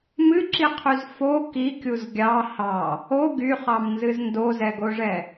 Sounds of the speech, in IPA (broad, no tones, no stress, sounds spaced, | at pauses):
m ɨ ǁ i qʰ y z f o k i kʲ u z ɡʲ ɑ h ɑ | o ɡ y χ ɑ m n z ɨ z n d o z ɛ ɡ o ʐ ɛ